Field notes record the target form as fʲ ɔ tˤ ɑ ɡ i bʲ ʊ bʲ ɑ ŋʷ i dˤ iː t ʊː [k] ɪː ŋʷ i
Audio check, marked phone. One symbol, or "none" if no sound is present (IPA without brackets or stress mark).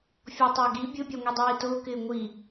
k